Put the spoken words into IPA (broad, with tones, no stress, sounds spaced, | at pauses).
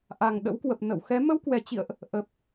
ʔ a˨˩ ŋ ɗ ə̰˧˥ w k w ə˨˩ p̚ n ə̰˧˨ w x ɛ˨˦ m ə˧ w k w ɛ˨˩ t͡ɕ ḭ˧˨ ə̯ ʔ | ʔ ə˨˩ p̚